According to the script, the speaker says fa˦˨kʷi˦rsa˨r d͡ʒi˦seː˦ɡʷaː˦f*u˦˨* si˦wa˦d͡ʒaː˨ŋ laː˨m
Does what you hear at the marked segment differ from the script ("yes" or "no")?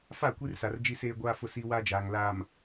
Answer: yes